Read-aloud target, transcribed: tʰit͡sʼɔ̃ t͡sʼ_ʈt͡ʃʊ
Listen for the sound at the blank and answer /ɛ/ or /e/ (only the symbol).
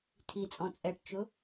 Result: ɛ